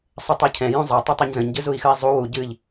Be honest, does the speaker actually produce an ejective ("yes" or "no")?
no